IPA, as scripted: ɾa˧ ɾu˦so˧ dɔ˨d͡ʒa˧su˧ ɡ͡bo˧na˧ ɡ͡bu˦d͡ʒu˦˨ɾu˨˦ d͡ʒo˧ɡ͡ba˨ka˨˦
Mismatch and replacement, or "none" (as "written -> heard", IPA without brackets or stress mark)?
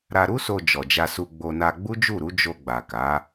d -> d͡ʒ